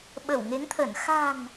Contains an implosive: yes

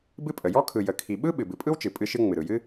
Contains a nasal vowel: no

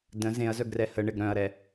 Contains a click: no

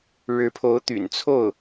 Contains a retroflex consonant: yes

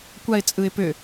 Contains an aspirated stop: no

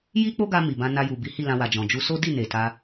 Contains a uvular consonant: no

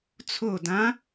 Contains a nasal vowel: yes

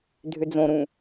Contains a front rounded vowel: yes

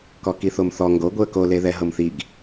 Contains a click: no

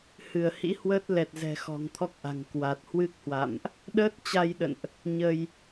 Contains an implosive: yes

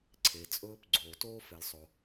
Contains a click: yes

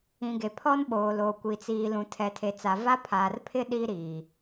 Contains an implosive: yes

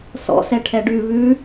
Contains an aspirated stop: yes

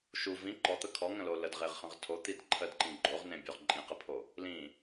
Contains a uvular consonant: yes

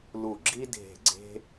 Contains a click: yes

